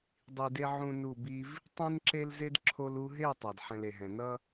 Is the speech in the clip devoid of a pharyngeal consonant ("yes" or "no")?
no